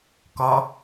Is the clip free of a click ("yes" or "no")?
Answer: yes